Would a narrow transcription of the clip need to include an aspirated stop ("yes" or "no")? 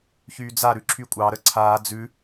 yes